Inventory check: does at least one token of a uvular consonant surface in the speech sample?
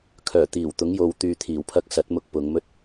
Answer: no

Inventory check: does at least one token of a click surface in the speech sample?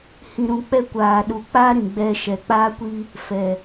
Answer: no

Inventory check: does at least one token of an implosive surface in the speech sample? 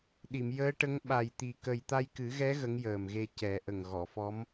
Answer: yes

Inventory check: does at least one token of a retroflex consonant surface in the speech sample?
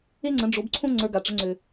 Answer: yes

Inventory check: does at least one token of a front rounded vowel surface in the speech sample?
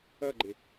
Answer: no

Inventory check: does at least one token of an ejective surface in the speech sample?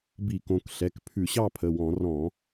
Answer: no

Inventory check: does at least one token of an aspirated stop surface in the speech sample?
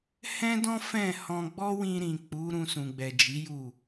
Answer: no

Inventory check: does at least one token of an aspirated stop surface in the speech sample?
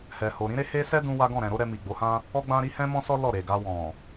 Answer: no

